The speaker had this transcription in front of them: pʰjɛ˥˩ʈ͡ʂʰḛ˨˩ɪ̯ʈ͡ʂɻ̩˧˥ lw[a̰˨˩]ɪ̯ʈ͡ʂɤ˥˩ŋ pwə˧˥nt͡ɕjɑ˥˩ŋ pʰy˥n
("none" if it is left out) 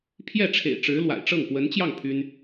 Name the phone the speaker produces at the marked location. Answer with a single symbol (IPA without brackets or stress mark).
a̰˨˩